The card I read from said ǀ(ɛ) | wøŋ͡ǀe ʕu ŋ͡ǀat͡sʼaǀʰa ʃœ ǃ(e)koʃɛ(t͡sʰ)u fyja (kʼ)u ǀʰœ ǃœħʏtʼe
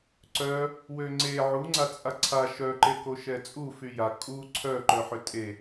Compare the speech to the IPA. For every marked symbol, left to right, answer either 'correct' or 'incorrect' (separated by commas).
incorrect, correct, incorrect, correct